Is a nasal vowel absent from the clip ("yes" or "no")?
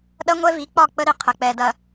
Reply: yes